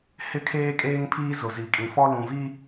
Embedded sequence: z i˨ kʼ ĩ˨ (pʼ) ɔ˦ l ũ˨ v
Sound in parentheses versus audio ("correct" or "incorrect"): incorrect